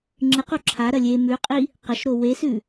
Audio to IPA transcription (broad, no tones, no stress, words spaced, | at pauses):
ŋ͡ǁɨq uǁʰaɾɐ lʲe mʉqʼi | qɐʃɾo wesʉ